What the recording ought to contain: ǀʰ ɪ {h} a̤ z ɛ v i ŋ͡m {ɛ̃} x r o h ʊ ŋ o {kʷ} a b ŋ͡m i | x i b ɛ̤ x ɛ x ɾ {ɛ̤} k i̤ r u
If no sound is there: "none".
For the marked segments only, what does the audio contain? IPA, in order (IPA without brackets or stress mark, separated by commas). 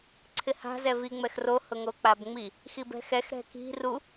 h, ɛ, k͡p, ɛ̤